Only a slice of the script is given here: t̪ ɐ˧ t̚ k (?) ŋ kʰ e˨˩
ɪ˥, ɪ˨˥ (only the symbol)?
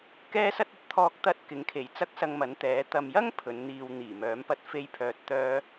ɪ˨˥